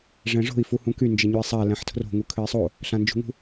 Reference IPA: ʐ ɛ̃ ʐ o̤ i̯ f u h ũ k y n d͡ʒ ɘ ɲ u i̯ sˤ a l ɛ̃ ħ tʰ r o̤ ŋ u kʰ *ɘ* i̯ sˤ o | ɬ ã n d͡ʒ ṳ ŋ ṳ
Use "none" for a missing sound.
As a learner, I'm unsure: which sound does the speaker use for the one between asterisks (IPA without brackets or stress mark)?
ɘ